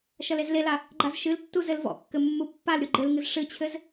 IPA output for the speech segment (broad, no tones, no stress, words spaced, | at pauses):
ʃɐlezlela | ɡ͡ǃazʃɨltːu zɘlvɔ̰kːɘ mːupːalɾʲu ɡ͡ǃɘlŋɨz ʂɨt͡ɕʰɘz